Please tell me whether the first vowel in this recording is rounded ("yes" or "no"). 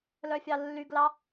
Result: yes